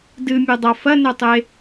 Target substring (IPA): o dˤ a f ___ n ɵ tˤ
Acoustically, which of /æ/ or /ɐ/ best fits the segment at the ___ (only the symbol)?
ɐ